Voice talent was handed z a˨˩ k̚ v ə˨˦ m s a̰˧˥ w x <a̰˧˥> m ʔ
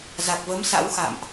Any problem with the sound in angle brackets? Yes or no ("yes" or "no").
yes